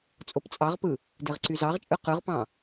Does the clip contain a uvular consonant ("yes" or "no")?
yes